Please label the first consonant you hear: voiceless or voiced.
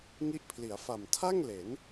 voiced